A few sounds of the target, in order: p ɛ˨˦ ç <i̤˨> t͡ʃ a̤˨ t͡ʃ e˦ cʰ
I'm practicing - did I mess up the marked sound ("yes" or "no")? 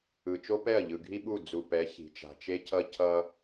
no